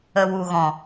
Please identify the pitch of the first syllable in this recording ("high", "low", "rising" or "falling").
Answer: low